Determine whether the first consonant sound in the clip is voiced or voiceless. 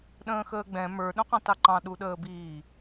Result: voiced